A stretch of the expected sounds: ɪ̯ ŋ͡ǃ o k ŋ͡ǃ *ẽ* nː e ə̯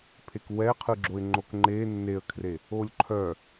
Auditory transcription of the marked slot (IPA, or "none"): e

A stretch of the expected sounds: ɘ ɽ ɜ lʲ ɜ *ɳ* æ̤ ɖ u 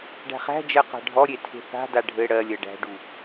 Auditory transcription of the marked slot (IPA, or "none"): ɖ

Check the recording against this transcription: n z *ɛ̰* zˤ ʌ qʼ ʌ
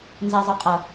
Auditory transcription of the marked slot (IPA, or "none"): ɛ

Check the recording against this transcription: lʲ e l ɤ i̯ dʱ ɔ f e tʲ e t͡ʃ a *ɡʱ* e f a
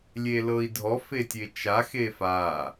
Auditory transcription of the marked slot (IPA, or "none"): x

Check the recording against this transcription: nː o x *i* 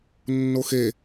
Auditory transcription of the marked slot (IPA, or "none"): e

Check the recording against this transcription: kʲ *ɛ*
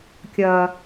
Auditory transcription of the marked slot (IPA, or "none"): ɜ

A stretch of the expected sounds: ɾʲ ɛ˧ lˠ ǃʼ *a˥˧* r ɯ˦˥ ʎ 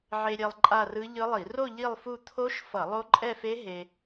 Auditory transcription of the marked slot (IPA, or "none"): a˥˧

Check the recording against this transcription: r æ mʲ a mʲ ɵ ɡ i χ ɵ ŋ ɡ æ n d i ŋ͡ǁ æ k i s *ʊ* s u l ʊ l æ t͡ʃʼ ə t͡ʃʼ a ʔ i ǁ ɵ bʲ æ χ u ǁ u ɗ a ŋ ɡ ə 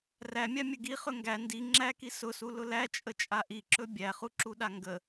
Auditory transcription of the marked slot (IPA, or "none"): ʊ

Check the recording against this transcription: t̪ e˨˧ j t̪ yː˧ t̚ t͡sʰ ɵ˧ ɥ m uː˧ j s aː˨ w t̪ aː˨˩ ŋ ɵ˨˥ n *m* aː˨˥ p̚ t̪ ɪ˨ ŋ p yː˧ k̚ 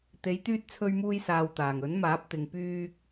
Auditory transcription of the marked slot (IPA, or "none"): m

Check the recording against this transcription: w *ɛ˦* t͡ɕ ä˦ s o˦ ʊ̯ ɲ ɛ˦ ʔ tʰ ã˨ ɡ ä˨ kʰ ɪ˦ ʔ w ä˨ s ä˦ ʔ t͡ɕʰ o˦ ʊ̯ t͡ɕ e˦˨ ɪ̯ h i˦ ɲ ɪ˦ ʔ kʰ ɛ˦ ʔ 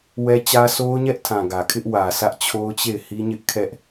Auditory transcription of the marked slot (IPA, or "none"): ɛ˦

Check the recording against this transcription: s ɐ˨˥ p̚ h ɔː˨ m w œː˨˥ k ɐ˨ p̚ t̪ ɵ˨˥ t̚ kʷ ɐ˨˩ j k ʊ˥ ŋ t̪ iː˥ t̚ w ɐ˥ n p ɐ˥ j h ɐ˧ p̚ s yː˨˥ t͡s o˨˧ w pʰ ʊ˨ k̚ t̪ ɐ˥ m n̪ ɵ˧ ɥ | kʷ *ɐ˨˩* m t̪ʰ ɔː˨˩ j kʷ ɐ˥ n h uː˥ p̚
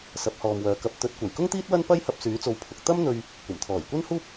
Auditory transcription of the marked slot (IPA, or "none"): ɐ˨˩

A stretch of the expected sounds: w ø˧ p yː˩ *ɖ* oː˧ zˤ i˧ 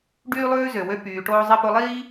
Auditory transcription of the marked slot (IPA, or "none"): ʈ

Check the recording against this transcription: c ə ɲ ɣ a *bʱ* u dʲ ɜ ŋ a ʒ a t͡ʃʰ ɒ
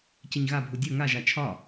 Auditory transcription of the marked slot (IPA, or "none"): bʱ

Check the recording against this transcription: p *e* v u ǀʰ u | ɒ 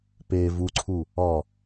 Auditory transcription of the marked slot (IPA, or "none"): e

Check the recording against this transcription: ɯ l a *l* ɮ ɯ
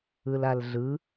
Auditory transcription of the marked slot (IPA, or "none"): l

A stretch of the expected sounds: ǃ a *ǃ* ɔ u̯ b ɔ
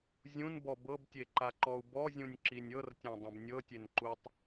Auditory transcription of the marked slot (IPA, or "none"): ǃ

